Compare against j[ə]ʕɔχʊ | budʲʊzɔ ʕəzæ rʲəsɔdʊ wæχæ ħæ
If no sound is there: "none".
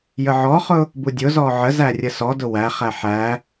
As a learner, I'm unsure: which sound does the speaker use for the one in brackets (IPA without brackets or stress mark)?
ə